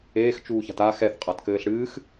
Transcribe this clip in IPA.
eː x t͡ʃ uː ç a̤ t a x ɛ θ qʼ a t k ɘː ɬ ɽ ɨː x

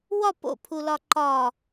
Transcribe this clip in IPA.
w ɒ p o̰ pʰ u l ɒ ǃ ɒ

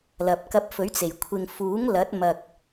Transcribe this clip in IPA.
l ɐ˨ p̚ k ɐ˧ p̚ f ɵ˨˥ ɥ t͡s e˨˩ j kʷʰ ɪ˨ ŋ f uː˨˥ ŋ l ɐ˨˥ t̚ m ɐ˧ k̚

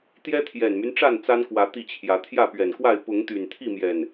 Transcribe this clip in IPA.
t̪ j ɛ˦ t̪ʰ j ɛ˨˩ n m y˦ n ʈ͡ʂ a˥˨ n t͡s a˦ n k w ä˨˦ t̪ i˥˨ t͡ɕʰ j ä˨˦ t̪ʰ j ä˥˨ p ɥ ɛ˨˩ n k w a˥˨ ɪ̯ p ʊ˨˦ ŋ t̪ y˨˩ n t̪ʰ i˥˨ m j ɛ˨˩ n

